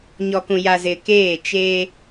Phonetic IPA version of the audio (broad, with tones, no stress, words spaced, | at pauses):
ɲɔ˨kũ˨ja˨ zɪ˨keː˦˨ t͡ʃeː˦